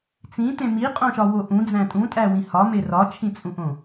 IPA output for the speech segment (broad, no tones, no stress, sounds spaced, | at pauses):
t͡s ĩ t ẽ m i qʼ õ ʃ ɒ w o ʔ ũ d͡z æ̃ tʼ ũ tʼ æ w ĩ h ɒ m e r ɒ t͡ʃʰ ĩ t͡sʼ ũ ʔ õ